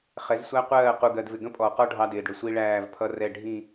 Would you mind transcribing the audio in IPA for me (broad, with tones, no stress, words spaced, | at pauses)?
χɛ˨˦zsʷæ˦qʷɜː˦˨ qu˨ɡɜ˨dvɪ˨ ɡə̃˦pʼɔ˨qɔ˦ ɖʱɑ˦dɪː˨dɽɪ˨ sʷi˦ɭæː˦˨vpʰʌ˦rɛ˦˨ ɖʱĩ˦˨